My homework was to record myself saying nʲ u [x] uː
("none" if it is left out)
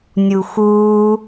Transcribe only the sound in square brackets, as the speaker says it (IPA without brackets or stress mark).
x